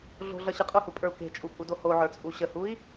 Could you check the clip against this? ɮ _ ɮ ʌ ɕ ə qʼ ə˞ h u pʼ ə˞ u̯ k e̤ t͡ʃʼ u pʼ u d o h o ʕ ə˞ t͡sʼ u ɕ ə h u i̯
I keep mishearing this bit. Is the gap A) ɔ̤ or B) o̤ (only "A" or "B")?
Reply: B